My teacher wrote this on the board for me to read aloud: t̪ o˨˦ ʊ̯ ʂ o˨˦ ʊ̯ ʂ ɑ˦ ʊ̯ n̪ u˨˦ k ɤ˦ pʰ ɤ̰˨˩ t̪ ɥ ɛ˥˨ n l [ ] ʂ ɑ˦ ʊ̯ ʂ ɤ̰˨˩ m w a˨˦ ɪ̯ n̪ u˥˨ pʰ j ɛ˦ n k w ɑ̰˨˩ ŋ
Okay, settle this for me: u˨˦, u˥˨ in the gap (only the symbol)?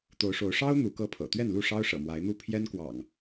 u˥˨